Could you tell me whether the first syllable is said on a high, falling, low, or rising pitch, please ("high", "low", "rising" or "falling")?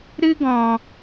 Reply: high